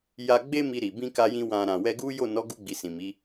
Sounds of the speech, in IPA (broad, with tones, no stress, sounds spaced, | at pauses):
j a˧ ɡ͡b e˦ m i˧ ɾ i˨ b ĩ˧ k a˧ j ĩ˧ w ã˨ ɾ ã˨ w ɛ˧ ɡ u˦ j o˦˨ n ɔ˨˦ ɡ u˧ ɡ͡b i˨ s ĩ˨ m i˨˦